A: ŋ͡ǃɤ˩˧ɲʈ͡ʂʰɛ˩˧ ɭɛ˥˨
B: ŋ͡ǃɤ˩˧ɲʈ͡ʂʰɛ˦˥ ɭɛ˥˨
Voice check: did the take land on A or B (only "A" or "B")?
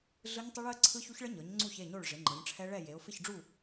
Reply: B